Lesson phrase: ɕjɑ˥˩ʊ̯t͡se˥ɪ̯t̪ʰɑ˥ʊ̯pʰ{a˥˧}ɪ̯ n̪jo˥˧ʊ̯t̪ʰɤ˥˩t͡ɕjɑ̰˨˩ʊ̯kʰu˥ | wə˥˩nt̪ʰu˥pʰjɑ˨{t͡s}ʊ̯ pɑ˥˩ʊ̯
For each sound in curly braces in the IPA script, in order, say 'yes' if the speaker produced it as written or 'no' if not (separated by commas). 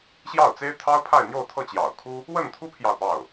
yes, no